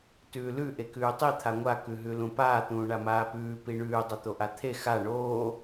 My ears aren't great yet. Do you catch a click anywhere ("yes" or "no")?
no